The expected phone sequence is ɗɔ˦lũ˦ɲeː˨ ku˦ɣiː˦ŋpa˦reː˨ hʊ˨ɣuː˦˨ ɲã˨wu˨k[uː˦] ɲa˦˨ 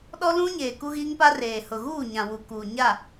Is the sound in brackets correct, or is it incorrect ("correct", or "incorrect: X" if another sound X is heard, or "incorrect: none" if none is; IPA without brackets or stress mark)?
incorrect: uː˨